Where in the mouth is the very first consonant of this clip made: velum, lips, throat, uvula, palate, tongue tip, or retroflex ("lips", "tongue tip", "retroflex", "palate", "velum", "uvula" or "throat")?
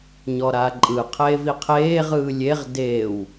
palate